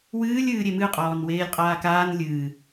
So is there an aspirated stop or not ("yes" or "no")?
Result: no